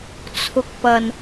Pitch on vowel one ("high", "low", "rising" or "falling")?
low